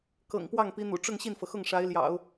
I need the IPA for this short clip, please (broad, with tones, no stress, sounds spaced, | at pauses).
k ɤ̰˨˩ ŋ p w ɑ˥˩ ŋ p i˧˥ n̪ ṵ˨˩ ʈ͡ʂ ʊ˥˧ ŋ ɕ i˥˩ n f ɤ˩ x ʊ˥˩ ŋ ʂ a˧˥ ɪ̯ l j ɑ̰˨˩˦ ʊ̯